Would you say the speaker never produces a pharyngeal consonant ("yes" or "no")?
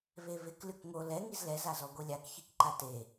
yes